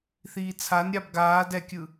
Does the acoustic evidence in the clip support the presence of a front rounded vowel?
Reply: no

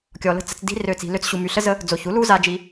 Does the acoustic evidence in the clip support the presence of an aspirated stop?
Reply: no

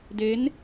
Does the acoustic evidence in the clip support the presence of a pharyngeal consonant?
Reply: no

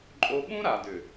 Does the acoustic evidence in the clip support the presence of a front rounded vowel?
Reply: yes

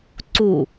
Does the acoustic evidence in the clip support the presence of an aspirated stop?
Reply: no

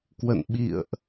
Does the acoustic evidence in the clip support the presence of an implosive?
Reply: yes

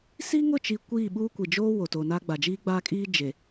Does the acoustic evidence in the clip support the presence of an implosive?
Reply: yes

